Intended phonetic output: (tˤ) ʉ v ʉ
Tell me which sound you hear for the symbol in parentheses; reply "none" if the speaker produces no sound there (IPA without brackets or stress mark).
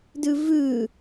d